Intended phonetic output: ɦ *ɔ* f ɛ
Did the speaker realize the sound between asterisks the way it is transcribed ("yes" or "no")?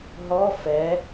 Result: yes